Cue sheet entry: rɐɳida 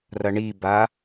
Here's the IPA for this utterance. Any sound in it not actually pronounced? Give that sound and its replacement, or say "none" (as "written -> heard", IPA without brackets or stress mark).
d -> b